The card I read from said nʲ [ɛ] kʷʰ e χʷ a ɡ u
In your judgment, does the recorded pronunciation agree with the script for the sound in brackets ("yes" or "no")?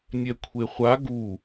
yes